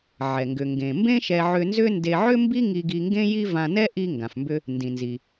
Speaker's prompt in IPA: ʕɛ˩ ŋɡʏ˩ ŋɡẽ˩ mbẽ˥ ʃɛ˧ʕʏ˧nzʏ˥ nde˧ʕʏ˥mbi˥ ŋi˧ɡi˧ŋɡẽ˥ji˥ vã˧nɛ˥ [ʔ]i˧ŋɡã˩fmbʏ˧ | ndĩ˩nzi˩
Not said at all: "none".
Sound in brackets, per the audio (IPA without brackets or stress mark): ʔ